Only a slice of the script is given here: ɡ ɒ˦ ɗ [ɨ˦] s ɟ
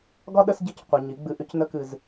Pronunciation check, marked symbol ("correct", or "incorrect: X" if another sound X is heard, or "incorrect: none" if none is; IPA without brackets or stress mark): incorrect: ə˦